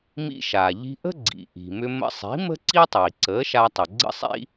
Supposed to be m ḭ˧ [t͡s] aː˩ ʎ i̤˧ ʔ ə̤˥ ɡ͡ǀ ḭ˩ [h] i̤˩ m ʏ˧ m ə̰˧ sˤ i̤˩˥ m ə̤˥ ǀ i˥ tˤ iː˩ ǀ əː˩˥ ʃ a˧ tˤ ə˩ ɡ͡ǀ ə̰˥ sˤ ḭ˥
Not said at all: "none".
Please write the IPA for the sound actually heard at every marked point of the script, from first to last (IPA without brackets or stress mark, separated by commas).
ʃ, ʔ